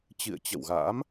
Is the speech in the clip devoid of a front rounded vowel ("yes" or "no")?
yes